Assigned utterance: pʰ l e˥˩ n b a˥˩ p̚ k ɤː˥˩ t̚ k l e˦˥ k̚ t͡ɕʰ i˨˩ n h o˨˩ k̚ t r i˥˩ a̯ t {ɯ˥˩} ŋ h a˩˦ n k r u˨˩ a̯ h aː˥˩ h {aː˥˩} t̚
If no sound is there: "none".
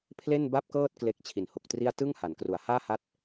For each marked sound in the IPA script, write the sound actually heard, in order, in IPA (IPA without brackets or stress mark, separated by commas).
ɯ˥˩, a˥˩